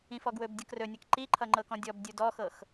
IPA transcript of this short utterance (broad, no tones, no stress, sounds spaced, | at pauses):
ĩ f ɔ ɡ w ɵ b dʲ ɤ k r ɵ nʲ ʌ k ǃ i ǃʰ ʌ ŋ͡ǃ ɤ k ɔ̃ dʲ ɔ b dʲ u d ɔ x ɤ x